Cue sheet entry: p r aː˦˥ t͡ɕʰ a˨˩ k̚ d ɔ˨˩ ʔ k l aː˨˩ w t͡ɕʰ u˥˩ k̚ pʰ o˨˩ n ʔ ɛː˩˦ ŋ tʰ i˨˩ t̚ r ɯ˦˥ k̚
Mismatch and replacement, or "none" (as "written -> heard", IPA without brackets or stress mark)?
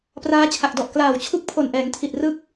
none